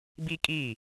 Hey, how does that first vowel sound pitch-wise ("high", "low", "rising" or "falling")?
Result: high